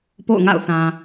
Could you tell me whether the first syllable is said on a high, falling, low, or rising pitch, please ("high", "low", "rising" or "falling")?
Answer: falling